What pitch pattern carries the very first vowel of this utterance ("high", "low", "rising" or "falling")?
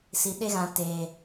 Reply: low